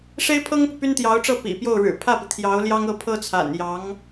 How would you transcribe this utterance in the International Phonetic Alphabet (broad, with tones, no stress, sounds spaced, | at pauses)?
ʂ e˥ ɪ̯ pʰ ɤ˥ ŋ p u˨ p y˥ n t̪ j ɑ˧˥ ʊ̯ ʈ͡ʂ ɤ˥˩ p ḭ˨˩ p j o˥˩ ʊ̯ ɻ ɻ̩˨˩ pʰ ä˥˩ p i˩ t̪ʰ j ɑ˧˥ ʊ̯ l j ɑ˥ ŋ ɤ˥˩ pʰ ɤ˥ t͡sʰ a̰˨˩ n j ɑ˧˥ ŋ